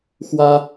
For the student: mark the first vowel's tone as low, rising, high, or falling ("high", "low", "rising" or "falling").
high